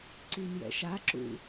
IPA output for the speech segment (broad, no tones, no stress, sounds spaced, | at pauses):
ǀ i n j ɛ̰ ʃ a ǁ ṵ